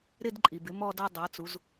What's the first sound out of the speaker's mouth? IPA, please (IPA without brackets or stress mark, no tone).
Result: ɾ